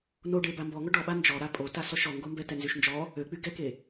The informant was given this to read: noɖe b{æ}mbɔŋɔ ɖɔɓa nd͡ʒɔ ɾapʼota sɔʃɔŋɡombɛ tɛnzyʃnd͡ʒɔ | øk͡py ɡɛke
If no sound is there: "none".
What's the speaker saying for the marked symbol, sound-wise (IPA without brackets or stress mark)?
a